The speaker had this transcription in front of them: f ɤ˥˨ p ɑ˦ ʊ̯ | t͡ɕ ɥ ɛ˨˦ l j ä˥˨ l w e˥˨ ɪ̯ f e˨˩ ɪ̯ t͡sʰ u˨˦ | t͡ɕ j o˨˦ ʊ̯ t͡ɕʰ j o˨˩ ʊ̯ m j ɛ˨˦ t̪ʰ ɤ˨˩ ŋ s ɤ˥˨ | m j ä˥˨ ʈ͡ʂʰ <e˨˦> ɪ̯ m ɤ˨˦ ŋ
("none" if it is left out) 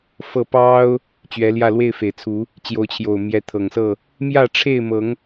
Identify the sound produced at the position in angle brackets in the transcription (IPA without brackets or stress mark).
e˥˨